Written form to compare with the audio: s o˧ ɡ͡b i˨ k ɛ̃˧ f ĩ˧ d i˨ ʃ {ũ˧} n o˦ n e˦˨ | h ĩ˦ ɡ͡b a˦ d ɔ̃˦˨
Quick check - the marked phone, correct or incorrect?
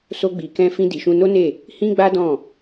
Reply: correct